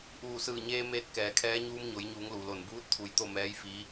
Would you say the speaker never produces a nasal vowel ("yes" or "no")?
yes